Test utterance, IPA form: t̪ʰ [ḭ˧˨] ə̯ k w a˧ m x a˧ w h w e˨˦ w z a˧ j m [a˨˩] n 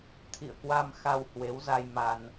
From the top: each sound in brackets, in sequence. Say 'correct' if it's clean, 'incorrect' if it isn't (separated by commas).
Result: correct, incorrect